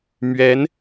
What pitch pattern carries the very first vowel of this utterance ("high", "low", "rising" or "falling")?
rising